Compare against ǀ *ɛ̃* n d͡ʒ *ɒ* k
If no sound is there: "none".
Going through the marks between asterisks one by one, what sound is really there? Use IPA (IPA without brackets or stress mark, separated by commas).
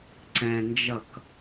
ɛ̃, ʌ